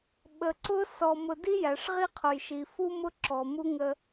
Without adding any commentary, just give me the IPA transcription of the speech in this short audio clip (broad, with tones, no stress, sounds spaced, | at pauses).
ɓ ə˨ ǀ ʊ˦ s ɔ˨ m ʊ˨ d i˦ j æ˨ ʂ ʁ i˦ qʰ ʊ˨ j ʃ i˨ f u˦ m ʊ˦ ǁ ɔ˨ m u˦ ŋ ə˦